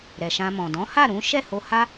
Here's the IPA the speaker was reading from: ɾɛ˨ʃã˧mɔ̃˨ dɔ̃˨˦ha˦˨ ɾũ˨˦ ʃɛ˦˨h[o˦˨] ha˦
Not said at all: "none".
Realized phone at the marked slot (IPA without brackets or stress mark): o˧